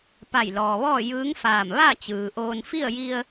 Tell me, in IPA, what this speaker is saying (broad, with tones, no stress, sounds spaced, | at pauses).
p a˧˩ j l ɔː˩ ʋ ɔː˥˨ j ɯː˧˥ ŋ f aː˧˩ m ʋ a˥˨ t͡ɕ ɯː˩ ʔ oː˧ n f i˥˨ ə̯ j i˧ ə̯